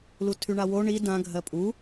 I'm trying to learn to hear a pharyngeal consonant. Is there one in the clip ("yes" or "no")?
no